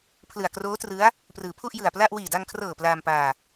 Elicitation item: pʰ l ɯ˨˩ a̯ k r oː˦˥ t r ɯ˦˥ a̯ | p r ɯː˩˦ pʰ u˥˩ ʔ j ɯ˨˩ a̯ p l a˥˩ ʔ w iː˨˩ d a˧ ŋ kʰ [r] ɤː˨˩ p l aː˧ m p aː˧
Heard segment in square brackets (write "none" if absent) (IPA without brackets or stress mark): r